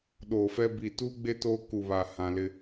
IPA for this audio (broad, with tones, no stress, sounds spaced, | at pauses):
ɗ oː˨ f ɛ˦ b i˨ t uː˦ ɡ͡b e˦ t oː˦ k u˨ β a˨ h ã˨ l ɪ˦